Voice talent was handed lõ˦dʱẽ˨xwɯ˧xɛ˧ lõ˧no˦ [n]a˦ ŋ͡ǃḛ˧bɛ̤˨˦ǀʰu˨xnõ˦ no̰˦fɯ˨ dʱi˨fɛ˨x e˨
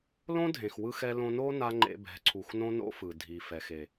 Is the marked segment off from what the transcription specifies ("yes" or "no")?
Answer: no